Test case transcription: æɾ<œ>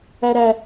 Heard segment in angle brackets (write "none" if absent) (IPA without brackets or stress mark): æ